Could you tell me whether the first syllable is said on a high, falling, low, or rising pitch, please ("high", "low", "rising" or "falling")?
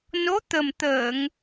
rising